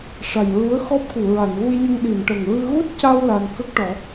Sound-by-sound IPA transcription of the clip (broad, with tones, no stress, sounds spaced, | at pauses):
ʂ a˨˩ j ɹ u˧˥ ə̯ x ɔ˦˥ p̚ k u˨˩˨ ɹ a˨˩˨ n ɣ u˧ j ɲ ə˧ ŋ ɗ i˨˩˨ n ʈ ə˨˩ ŋ ɹ ɨ˧ ɣ u˦˥ t̚ c a˧ w l a˧ n k ə˦˥ k̚ ʈ ɔ˨˩˦